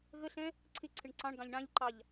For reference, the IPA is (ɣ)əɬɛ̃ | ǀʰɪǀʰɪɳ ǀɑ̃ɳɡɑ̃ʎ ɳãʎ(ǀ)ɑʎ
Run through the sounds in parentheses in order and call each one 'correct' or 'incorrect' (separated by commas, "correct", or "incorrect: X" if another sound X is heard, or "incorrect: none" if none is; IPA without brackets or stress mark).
correct, incorrect: ǃ